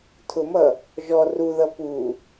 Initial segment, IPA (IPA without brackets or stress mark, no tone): tʰ